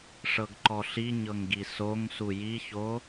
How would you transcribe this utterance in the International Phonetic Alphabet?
ʂ ɤ ɡ ǃ ɔ ɬ i ɲ ɤ ŋ ɡ i s o ŋ s u j i ç o

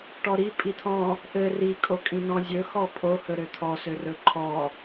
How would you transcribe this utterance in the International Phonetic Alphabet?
ʈ ɔ ɾ i pʼ i t̪ʰ ɔ̃ | ʔ ɘ r i kʼ o kʼ ĩ n ɔ̃ zʲ ɵ x ɔ pʼ o h ɵ ɾ ø t̪ʰ ɔ s ø r ɵ ǃʰ ɔ

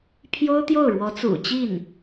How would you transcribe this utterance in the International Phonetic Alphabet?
pʰ j o˥ ʊ̯ t̪ j o˥˩ ʊ̯ ɻ w ɔ˧˥ t͡s ṵ˨˩ t͡ɕ i˥˩ n

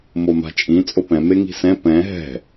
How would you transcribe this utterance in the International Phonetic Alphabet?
m o m a̤ t͡ʃʼ ĩ t͡sʼ o p ɛ̃ m e ŋ i̤ s ɛ̃ p ɛ̃ ɦ ɛ̤

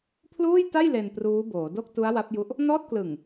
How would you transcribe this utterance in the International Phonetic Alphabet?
pʰ l uː˥˩ j t a˥˩ j l e˧ n p r uː˦˥ b oː˩˦ d o˥˩ k̚ t u˦˥ a̯ w a˦˥ p̚ j u˦˥ ʔ | n ɔː˥˩ t̚ k l ɯ˨˩ ŋ

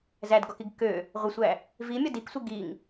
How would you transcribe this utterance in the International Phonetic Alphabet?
z æ d ɡ ɔ k i ɡ k ø | ʁʷ ə sʷ æ | v i mʲ ɒ d i k sʷ i ɡ i ŋ

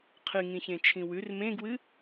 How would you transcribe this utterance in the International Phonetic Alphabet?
qʰ ɨ ŋ ĩ ç ẽ t͡ʃʰ ĩ w ʉ r m ẽ ɡ w ɨ

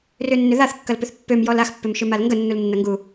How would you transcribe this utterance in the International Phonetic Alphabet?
r ʏ nː ʏ ð a θ kː ɐ l p ʏ θ pː ø m j ɔ l a x pː ʏ m ʃ ʏ m a l ŋ ɡ ə nː u l nː ɐ ŋ ɡ u

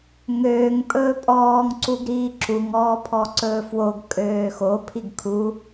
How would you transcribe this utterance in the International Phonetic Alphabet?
ŋ øː ŋ pʼ ɵː pʼ ɔː ŋ ǀ u ɡ ɾ iː ǁ u ŋ ɔː pʰ ɔ ǀ ɵː f w o ɡ kʼ øː x o pʰ i ɡ kʰ u

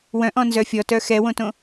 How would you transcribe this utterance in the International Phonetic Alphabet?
w œ̃ ʔ ɔ̃ n z œ fʲ ɔ t œ x ɛ w õ t õ

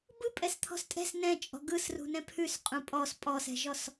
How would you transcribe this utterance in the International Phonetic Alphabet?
b ɯ pʼ ɛ s t̪ʰ ɔ̤ s tʼ ɛ̤ s n ɛ̃ t͡ʃʼ ɔ̤ ɡ ɯ s r ṳ n ɛ̃ pʰ ʉ s qʼ ũ pʼ ɔ s pʼ ɔ s ɛ̤ ʒ ɔ s

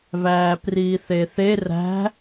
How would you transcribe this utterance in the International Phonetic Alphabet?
v æː p r iː θ e θ e r æ̤

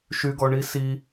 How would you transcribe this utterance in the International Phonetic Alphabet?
ʃ y ɡ ɔ ɳ i s i

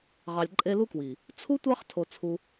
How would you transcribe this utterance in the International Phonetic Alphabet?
ʁ ɑ˧ lʲ ǃʼ e˦ l u˦ k w i˨ | t͡sʰ u˦ tʷ ɑ˦ χ tʰ o˧ t͡sʰ u˧

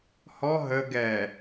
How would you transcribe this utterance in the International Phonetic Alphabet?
h ɔ ɦ ə ɡ ɛ

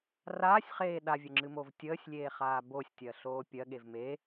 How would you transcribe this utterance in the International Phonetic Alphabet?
r aː sʲ χ eː ɗ a vʲ ə ŋ͡ǁ ɨ m o v tʲ əː sʲ lʲ eː χ aː b o sʲ tʲ ɜ ɬ oː pʲ ɜ ɠ e v m e

